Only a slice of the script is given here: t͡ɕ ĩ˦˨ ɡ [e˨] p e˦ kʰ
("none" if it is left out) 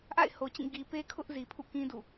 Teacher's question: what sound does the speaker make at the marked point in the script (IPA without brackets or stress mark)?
i˨